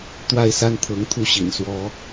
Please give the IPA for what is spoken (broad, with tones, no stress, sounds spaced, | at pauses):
t̪ w a˥˨ ɪ̯ s a˦ n t̪ʰ ɤ˨˦ ŋ t̪ʰ u˦ ɕ ḭ˨˩ n s w ɔ˨˦